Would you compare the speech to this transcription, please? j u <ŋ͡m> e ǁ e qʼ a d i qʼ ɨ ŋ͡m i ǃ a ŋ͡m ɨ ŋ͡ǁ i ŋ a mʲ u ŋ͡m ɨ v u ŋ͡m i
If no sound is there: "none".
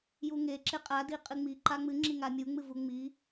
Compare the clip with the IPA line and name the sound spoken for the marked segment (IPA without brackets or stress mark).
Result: ŋ